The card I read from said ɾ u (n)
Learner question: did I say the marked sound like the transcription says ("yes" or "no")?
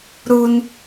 yes